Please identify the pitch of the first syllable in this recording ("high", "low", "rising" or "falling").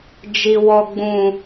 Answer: low